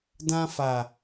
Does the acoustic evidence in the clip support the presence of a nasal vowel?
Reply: yes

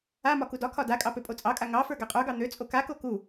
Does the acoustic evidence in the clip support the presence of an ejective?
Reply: yes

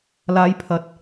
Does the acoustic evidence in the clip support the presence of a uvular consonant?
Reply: no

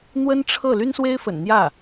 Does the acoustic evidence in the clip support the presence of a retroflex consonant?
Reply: yes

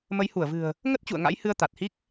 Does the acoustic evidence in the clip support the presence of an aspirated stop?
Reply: no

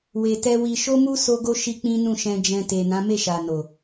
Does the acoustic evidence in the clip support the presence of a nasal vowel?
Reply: yes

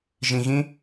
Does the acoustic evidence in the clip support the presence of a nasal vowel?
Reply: yes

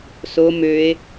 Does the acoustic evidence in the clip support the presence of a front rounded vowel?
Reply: yes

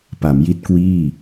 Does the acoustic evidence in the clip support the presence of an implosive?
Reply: no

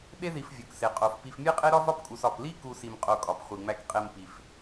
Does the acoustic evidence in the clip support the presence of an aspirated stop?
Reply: no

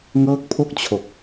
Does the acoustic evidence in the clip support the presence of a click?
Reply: no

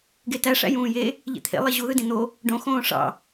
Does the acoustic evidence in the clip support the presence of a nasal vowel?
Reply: yes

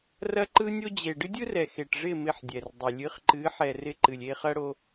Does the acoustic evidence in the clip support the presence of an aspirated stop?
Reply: no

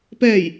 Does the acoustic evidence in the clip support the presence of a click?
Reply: no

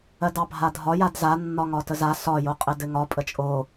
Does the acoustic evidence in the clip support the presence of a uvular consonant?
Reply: yes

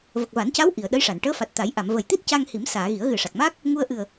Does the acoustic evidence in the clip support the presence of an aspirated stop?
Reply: no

